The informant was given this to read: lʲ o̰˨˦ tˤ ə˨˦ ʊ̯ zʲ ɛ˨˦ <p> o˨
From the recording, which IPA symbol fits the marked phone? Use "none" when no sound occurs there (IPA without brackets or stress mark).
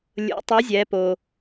p